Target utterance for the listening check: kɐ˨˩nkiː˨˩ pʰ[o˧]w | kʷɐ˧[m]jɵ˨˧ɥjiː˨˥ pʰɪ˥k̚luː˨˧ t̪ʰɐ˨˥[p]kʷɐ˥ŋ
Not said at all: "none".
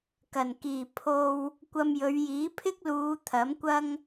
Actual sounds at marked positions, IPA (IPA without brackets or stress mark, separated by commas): o˧, m, m